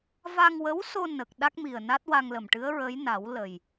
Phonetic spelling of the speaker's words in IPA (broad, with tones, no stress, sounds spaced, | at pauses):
v a˧ ŋ w ə˧˥ w s o˧ n ə˨˩ k̚ ɗ a˦˥ k̚ m i˨˩ ə̯ n a˦˥ t̚ w a˧ ŋ l ə˨˩ m ʈ ɨ˧˥ ə̯ ɹ ə˧˥ j n a˨˩˦ w l ə˨˩ j